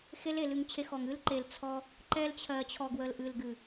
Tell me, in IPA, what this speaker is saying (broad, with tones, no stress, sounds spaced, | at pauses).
x e˦ l e˨ l ɨ˧ ŋ t͡ɕʰ e˧ x ɔ˨ ŋ ɨ˦ l ǃ e˨ l t͡sʰ ɔ˧ | ǃ ɛ˧ l t͡ɕʰ ɜ˨ t͡ɕʰ ɔ˨ ɡ w ə˨ l ʔ ɨ˨ l ɡ ɨ˨